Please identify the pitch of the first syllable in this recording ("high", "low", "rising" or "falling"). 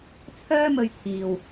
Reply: high